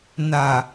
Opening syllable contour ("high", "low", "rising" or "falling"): low